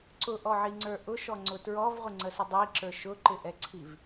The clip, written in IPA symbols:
ǀʊʔɔʕiŋ͡ǀə˞ ʔʊʃɔŋ͡ǀʊ tɹɔvʁʷɪŋ͡ǀəsʊ dˤiǁə˞ ʃʊǃɪʔɛǀʰiv

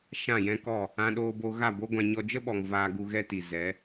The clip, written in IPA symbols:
ʃã˦˨jɛ̃˦kɔ˦˨ | ã˧ɗoː˧bo˧ ɣa˦˨bo˦ɡʷã˧ ɲɔ˧ d͡ʒə˦ɓɔ˨ŋ vaː˧ɡu˧ɣɛ˦ti˨ zɛ˨˦

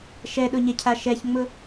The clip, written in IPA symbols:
ʃɛɗʊɲɛcʰa ʃɛçŋ͡mʊ

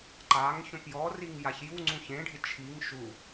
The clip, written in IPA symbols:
ǃaŋ çõpjɔriŋ jaçjuŋ͡ǀũ çẽɖʱɪ t͡ʃʰiŋ ʃu

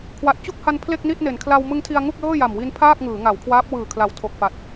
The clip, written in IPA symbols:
kʰwa˨˩t̚t͡ɕu˥˩k̚ha˧n pʰle˥˩k̚ni˥˩t̚ne˩˦n kʰla˧wmɯ˦˥ŋtʰi˧a̯ ŋu˥˩k̚lɤː˥˩ja˨˩mwi˦˥n pʰaː˥˩k̚ ŋɯː˩˦ ŋa˩˦wkʰwaː˦˥p̚ wɯː˨˩kʰla˨˩w tʰo˨˩k̚ pa˨˩t̚

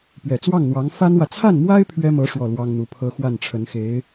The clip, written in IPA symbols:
pɥɛ˨˩t͡swɑ˥˩ŋn̪wɑ˧˥ŋ fa˥nwä˨ t͡sʰa˥˩nmwa˥ɪ̯ pʰɥɛ˥mɤ˧˥ ʂwɔ˥˩lwɑ˥ŋn̪u˧˥pʰɤ˥ xwa˥˩nʈ͡ʂʰə˧˥nxe˧˥ɪ̯

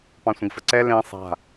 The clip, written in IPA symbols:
pɑ̃sʷə̃ɡfəǀɛ lẽ sˤa̤

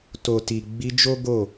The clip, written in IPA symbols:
to˨ ti˨ɡ͡bi˧d͡ʒo˦ ɡo˦˨

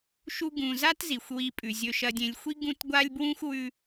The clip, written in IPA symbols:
ʃu˦ ɡũ˨za˥tzi˩xʷ wi˨pʼʉ˩zʲɵ˨ ʃɐ˨dʲẽ˨lʲxʷi˦ ɡũ˦t ɡʷa˥lʲbwũ˥xʷ wʉ˦

